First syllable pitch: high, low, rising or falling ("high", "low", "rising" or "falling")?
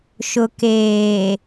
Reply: low